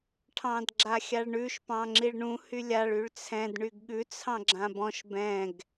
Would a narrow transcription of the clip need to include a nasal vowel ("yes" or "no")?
yes